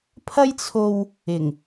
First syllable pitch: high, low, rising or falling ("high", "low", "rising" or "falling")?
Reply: high